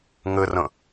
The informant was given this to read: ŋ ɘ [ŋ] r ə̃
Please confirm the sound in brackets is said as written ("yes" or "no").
no